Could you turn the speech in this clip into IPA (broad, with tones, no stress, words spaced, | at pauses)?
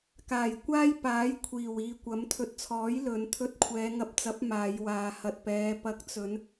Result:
kaː˨˩jkʷaː˥jpaː˨˥j kʷʰiː˨˩wiː˨kʷɐ˨˥m t̪ʰɵ˨t̚t͡sʰɔː˨˥j lɵ˨˧n t̪ʰɵ˧t̚kʷʰɛː˨˧ŋɐ˧p̚t͡sɐ˨˥p̚ maː˨˧jwaː˨ hɐ˨t̚pɛː˨˧ pɐ˨˥k̚t͡sɵ˨˧n